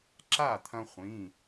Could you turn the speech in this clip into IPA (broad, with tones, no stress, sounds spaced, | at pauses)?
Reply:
ǁ a˥˩ t̪ʰ ɐ̃˧ χʷ ĩ˩˧˩